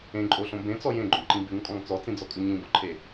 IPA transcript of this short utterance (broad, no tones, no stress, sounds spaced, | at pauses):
ẽ ǃʼ o ɬ õ b ẽ t͡s ɔ j ẽ ɡ͡ǃ õ ǃ ĩ b ʉ ŋ kʼ ɔ̃ ŋ t͡s ɔ t͡s ĩ d͡z ɔ kʼ ʉ ɲ ĩ b ɔ ǃʰ e